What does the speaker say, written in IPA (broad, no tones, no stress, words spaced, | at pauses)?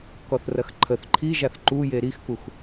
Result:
kɔθrɐxǃʰəθ ǃʰiʒaθ ǃuje ɾixkux